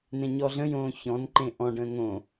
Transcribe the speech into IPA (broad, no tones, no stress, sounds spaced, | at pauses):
n ẽ ɲ ɔ ɮ ə̃ j õː ç ɔ̃ n ǃ ẽ ʔ ɔ̃ ɖ ə̃ː ŋ õ